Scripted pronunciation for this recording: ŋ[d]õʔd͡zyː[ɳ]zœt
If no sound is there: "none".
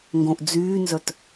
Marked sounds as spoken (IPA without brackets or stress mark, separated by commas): ɡ, n